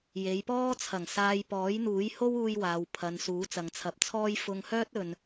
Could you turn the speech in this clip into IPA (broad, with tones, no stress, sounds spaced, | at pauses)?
j e˨˧ j p ɔː˥ t͡sʰ ɐ˨˩ ŋ s aː˧ j p ɔː˨˥ j n̪ uː˨˥ j h o˥ w uː˧ j w aː˨ w pʰ ɐ˨ n s uː˨˥ t͡s ɐ˨ ŋ t͡sʰ ɐ˨˥ p̚ t͡sʰ ɔː˥ j f ʊ˧ ŋ h œː˥ t̚ ɵ˨ n